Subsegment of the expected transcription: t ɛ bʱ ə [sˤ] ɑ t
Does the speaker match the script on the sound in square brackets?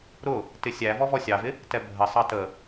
yes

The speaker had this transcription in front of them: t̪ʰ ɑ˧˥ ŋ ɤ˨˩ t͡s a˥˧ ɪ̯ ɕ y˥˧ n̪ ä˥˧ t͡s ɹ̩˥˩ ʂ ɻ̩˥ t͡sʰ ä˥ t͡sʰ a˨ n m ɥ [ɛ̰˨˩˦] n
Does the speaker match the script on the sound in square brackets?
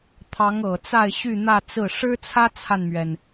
no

